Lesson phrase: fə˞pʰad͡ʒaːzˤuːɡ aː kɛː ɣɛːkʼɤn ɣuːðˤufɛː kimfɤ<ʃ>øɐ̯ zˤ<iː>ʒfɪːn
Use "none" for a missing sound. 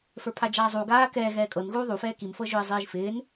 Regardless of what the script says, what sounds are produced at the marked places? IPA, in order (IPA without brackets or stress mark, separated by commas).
ʒ, iː